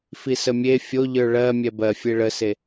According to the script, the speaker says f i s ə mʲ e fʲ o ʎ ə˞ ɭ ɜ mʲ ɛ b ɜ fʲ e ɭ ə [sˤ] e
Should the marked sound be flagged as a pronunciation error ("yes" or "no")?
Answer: yes